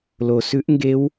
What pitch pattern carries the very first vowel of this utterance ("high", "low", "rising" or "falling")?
low